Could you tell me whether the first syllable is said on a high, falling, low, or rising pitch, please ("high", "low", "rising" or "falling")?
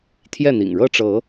falling